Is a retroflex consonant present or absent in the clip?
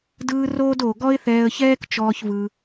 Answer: absent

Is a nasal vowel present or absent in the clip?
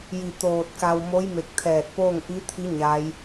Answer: absent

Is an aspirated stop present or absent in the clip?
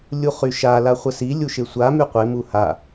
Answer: absent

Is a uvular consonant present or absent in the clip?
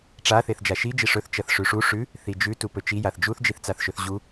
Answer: absent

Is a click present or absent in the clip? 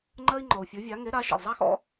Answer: present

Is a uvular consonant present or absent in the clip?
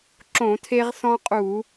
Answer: present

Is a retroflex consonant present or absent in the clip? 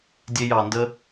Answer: absent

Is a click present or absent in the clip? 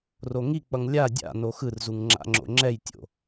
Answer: present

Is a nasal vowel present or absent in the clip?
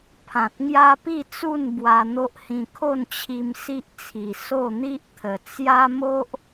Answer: present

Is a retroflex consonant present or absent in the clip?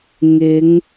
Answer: absent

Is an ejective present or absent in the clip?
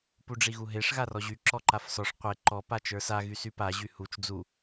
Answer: absent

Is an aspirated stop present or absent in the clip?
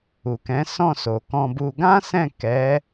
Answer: absent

